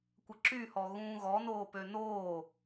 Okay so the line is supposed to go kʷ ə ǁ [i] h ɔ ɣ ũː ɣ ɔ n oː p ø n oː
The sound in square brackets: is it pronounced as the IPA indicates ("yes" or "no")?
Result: no